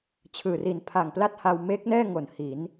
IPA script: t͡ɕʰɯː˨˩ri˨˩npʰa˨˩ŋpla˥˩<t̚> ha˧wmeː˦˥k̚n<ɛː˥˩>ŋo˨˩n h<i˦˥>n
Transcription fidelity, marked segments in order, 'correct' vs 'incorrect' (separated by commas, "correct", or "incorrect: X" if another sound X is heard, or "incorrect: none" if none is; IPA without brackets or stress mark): correct, correct, incorrect: i˩˦